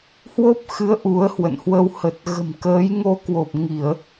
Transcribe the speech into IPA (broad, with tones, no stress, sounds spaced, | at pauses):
h w o˦˥ p̚ x ɨ˨˦ ə̯ ʔ u˨˦ ə̯ h w ə̰˧˨ n h w ə˧ w h ə˨˩ t̚ ɣ ə̤˨˩ m k əː˨˦ j ŋ o˧ k w o˨˩ p̚ ŋ i˧˩˨ ə̯